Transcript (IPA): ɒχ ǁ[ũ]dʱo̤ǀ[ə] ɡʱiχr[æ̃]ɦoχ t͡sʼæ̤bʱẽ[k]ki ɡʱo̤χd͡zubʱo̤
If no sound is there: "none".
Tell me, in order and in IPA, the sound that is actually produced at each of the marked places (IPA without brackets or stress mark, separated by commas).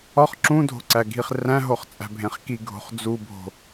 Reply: ũ, æ, æ̃, χ